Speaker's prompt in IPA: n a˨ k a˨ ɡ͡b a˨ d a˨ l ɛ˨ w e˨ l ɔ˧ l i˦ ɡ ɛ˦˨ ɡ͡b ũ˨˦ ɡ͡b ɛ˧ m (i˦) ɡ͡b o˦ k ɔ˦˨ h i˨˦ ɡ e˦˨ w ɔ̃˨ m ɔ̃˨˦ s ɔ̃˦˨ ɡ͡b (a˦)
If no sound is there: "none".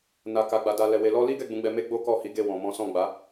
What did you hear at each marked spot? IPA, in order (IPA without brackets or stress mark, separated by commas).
e˦, a˨˦